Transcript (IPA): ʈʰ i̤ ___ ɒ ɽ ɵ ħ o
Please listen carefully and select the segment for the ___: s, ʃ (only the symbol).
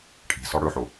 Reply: s